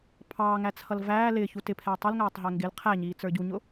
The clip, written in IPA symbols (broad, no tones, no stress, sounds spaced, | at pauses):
pʰ ɑː ŋ æ t͡sʰ ʌ l v æː l ɪː ç u t ɪ pʰ ɛː tˤ ʊ l ŋ æː tˤ ɦ ɛ ŋ ɡ ɪ l qʰ æ ɲ iː t͡s ə˞ ɟ u ɲ ʊ